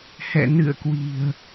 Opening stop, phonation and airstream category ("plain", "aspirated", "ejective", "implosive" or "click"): plain